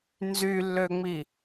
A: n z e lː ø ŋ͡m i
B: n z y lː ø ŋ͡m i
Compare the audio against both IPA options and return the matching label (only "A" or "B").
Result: B